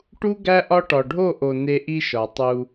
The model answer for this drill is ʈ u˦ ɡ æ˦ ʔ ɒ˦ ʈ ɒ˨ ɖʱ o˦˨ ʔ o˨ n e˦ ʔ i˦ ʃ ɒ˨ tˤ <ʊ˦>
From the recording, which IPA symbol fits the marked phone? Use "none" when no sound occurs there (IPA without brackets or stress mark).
u˦